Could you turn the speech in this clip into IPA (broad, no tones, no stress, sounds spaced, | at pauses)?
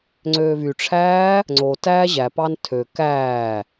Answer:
ŋ͡ǀ øː v y ʈ͡ʂʰ æː | ŋ͡ǀ o t æː ʑ æ p ɑ n tʰ ø k æː